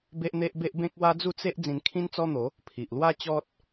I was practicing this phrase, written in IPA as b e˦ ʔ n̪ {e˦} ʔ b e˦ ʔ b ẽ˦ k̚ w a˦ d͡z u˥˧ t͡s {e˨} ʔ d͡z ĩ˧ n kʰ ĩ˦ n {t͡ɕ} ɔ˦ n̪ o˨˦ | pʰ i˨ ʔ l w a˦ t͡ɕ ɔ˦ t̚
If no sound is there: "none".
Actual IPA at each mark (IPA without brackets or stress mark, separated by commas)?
e˦, e˦, t͡s